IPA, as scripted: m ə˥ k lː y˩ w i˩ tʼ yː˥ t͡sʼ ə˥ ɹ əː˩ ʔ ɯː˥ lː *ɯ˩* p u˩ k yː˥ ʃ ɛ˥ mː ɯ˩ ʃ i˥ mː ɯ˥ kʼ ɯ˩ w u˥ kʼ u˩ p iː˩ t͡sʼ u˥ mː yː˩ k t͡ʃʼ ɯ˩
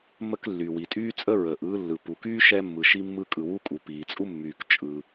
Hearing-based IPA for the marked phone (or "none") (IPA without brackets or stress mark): ɯ˩